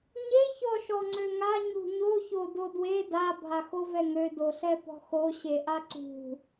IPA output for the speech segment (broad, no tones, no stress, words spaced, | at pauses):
ɲe çɔʃɔŋ͡ǀøŋa ɲṳɲo çododwe da bʱaxovɛŋø doɬɛpɔ̤xo ɕeʔaǀṳ